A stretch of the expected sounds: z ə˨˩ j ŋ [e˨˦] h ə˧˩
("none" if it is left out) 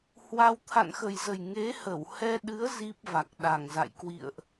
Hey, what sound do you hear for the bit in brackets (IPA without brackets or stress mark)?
e˨˦